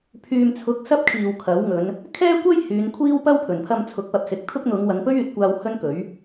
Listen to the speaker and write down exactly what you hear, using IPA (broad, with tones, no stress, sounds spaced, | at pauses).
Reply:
pʰ yː˨ m t͡sʰ ʊ˨˥ k̚ s ɐ˥ p̚ kʰ iː˨ w kʰ ɐ˨˥ w ŋ ɵ˨˧ n | kʰ ɛː˥ kʷ ɐ˥ j h yː˨˧ n kʷʰ iː˥ w p ɐ˥ w pʰ ɵ˨˩ n pʰ ɐ˧ m t͡sʰ ʊ˨˥ k̚ p ɐ˨ p̚ s ɪ˨˥ k̚ t̪ʰ ʊ˥ k̚ n̪ ʊ˨˧ ŋ w ɐ˨˧ ŋ p ɵ˥ ɥ yː˨ t̚ kʷ aː˧ w h ɵ˥ n k ɵ˨˥ ɥ